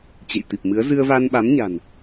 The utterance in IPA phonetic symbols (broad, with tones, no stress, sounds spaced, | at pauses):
t͡ɕ ḛ˧˨ j t̪ i˨˩ p̚ m ɨ˨˦ ə̯ z ɨ˧ ə̯ v a˧ n ɓ a˨˦ m ɲ a̤˨˩ n